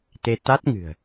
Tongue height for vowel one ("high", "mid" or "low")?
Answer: mid